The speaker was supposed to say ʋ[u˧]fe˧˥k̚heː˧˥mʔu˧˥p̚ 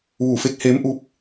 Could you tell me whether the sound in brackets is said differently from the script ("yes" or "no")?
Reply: yes